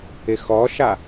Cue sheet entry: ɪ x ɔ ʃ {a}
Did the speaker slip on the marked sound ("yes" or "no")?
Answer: no